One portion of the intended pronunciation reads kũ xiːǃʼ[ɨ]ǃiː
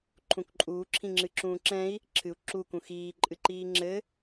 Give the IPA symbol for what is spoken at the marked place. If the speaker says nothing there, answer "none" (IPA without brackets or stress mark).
ɨ